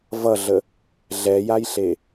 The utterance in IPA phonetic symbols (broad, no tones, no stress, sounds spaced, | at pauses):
v ʌ ɮ ə | ɮ ɛ j a j ɬ e